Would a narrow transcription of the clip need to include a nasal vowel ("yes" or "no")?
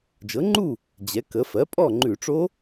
no